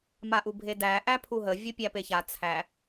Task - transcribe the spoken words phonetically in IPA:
maʔubʱedæ ʔæpʰuɦə vʲupʲæpeça t͡sʰæ

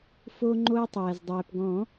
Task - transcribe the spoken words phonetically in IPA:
fo˧ŋ͡ǃo˧ə̯tˤɛː˩z dˤɛː˩pɡɔ̃ː˨˩˦

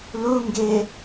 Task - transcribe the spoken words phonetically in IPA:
luŋɡe

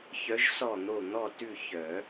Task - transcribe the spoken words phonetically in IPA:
çœ˧˥ʒ sɔ˥˨n̪o˥˨ n̪ɔ˥˨tʉ˥˨ çœ˨˩˦

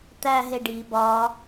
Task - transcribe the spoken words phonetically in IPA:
t̪æɦe ɖi bɒ

